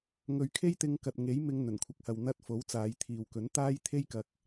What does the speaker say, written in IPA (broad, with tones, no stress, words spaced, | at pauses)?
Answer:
ŋɵ˨ɥ kʰe˥jt̪ɪ˧ŋkɐ˨t̚ ŋe˨˥jmɪ˧ŋ n̪ɵ˨˩nkʷʰɐ˨˥k̚hɐ˨w n̪ɐ˧t̚ fo˨˥wt͡saː˨˧jt̪ʰiː˨wkɵ˨˥n t̪aː˥jt̪ʰe˥jkɐ˧k̚